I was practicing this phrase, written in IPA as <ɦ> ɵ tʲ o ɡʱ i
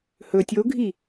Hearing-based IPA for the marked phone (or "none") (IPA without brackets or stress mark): h